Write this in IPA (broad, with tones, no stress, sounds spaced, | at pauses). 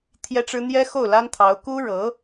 t̪ʰ j ɛ˥ ʈ͡ʂ ɻ̩˥ n̪ j ɛ˥ x o˥˩ ʊ̯ l a˥ n t̪ʰ ɑ˧˥ ʊ̯ k u˥ ɻ ɤ˧˥